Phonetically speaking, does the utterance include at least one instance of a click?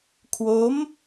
no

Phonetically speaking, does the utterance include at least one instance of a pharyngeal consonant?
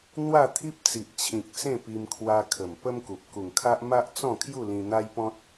no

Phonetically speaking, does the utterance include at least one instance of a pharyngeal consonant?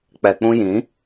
no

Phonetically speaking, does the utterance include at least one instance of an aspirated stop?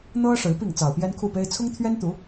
yes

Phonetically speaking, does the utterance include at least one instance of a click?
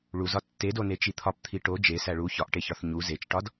no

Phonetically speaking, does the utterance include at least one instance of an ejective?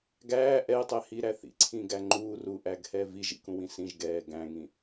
no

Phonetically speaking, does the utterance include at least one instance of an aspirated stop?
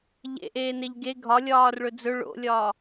no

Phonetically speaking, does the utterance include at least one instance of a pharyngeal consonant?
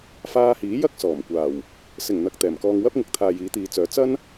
no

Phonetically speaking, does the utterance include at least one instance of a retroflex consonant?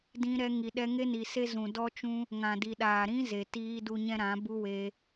no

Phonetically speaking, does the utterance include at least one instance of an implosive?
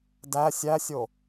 no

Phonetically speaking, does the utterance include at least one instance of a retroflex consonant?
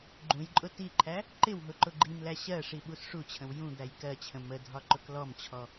yes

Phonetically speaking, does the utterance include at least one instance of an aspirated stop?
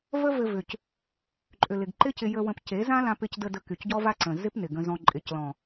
no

